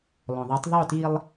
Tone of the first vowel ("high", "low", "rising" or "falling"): low